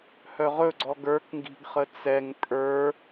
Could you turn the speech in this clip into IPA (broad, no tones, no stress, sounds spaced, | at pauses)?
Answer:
h œ ʁ ɵ ɡ͡ǀ ɔ ɡ ə˞ k ŋ ɡ i̤ ɡ χ ə t͡s ɛ ŋ pʼ ə˞